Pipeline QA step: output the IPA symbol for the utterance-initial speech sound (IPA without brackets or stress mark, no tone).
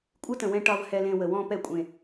kʷʼ